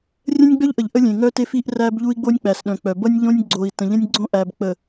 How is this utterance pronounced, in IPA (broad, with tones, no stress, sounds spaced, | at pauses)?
rʲ ə̃˦ nʲ ɡ͡b œ˦ ʎ ʔ ə˨ ʎ ʔ ə˦ lʲ ẽ˨ ŋ œ˦ t e˦ f i˦ ʔ r æ˦ b ʎ u˦ i̯ ɡ͡b o˦ nʲ k͡p æ˨ s ɗ œ̃˨ k͡p œ˨ b ʌ˦ nʲ ʎ õ˦ nʲ ɡ͡ǀ o˨ i̯ t ə̃˨ ʎ ə̃˦ nʲ ɡ͡ǀ õ˦ ʔ æ˨ b k͡p ə˨